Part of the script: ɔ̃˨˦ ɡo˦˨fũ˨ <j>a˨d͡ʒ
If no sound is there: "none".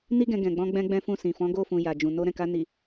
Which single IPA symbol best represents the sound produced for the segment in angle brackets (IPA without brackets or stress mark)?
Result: j